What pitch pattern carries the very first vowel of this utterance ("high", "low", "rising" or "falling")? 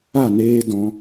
falling